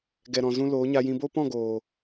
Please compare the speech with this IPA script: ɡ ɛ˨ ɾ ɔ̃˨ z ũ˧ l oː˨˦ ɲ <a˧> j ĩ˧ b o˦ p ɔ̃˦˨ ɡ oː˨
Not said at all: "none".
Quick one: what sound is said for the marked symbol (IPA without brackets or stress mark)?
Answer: a˧